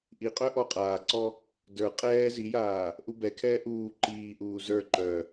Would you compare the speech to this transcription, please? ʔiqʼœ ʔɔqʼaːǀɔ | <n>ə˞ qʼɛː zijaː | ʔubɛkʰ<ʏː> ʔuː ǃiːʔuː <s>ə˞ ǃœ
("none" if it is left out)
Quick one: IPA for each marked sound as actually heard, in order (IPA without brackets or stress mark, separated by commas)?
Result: d, ɛː, z